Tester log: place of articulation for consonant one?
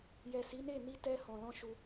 palatal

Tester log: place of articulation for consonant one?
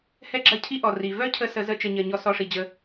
glottal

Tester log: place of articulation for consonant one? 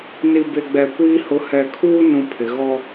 alveolar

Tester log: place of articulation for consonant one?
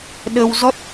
alveolar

